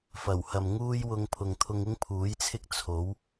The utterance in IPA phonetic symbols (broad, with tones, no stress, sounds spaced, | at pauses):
f ɐ˨˩ w h ɐ˨ m ŋ uː˥ j w ʊ˧ ŋ pʰ ʊ˨ ŋ t̪ʰ ʊ˧ ŋ ɪ˥ ŋ pʰ uː˨˥ j t͡sʰ ɪ˥ k̚ t͡sʰ o˨˥ w